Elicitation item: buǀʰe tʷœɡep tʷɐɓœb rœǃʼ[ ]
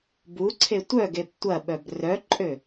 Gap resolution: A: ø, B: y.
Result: A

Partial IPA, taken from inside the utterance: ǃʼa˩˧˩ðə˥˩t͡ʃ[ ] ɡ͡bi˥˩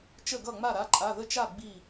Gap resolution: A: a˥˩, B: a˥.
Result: A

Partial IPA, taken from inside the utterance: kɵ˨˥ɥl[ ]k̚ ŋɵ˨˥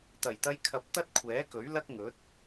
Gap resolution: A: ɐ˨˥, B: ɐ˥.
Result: B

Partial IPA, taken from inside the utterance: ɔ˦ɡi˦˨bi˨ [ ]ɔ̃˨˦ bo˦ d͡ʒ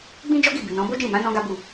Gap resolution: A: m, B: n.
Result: B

